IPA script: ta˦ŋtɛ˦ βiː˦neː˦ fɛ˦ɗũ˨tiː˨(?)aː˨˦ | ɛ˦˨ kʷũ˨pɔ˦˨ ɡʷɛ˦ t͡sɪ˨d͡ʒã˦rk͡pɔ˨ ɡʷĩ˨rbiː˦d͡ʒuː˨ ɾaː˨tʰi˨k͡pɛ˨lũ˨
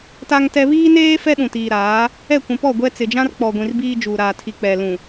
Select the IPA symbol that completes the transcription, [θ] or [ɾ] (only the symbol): ɾ